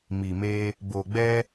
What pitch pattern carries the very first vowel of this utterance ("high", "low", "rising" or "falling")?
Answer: low